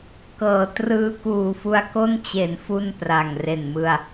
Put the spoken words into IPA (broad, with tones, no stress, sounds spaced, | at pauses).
k ɤː˩˦ t r ɯː˧ k uː˨˩ f u˧ a̯ k o˥˩ n t͡ɕ e˩˦ n f u˥˩ n p r a˨˩ ŋ r e˨˩ n m ɯ˧ a̯